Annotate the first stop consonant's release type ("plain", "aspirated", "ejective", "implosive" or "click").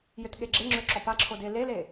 plain